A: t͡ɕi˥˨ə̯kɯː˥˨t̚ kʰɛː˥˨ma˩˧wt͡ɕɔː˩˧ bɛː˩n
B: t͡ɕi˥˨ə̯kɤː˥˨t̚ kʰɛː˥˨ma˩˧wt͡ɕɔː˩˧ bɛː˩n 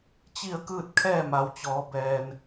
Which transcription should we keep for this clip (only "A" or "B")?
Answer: A